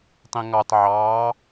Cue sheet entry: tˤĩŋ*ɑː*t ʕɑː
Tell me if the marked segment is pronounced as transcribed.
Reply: no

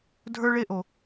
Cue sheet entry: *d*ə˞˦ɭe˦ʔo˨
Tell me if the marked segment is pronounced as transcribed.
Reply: no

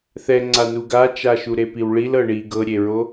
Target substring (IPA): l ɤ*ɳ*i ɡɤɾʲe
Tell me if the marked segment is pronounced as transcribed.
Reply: yes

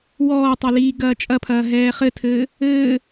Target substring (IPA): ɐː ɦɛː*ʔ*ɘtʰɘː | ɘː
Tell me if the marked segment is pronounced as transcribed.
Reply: no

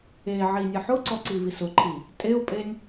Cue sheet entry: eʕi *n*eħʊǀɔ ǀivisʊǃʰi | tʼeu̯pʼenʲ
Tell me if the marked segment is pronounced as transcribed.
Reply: no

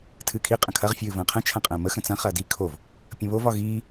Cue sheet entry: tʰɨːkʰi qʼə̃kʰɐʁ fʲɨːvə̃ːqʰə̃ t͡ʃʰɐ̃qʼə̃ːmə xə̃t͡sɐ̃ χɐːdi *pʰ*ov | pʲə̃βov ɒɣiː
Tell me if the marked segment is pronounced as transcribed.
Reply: no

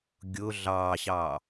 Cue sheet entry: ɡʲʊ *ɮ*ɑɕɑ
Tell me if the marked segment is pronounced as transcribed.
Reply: yes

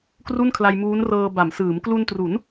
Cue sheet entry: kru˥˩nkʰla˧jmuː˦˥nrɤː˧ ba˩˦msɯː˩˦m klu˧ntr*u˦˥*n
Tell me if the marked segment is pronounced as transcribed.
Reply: no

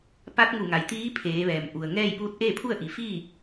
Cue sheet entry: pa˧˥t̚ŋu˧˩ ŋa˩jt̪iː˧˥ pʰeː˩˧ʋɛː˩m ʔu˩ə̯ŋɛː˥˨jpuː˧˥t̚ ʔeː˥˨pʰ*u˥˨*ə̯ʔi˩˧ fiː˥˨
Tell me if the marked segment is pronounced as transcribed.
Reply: yes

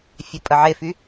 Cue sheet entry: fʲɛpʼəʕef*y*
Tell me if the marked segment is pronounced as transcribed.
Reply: yes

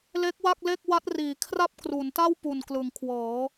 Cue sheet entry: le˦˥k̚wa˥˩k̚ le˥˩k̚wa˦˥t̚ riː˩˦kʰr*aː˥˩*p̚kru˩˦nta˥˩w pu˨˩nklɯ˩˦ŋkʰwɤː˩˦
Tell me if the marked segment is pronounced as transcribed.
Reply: no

